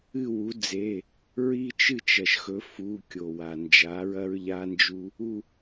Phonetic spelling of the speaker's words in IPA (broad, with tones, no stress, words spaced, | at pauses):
ɨ˥˨wu˩˥d͡ze˩˧˩ | ɹi˦t͡ʃɨ˥˨ t͡ʃɐ˩ʃxɵ˩˥fu˩˧˩ kʲo˩wa˩ nd͡ʒa˩˥ɹɐ˦ɹʎa˦nd͡ʒu˦ | u˥˨